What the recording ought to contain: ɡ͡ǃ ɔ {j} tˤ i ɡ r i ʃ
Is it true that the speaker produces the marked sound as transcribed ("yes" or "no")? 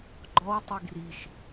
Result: no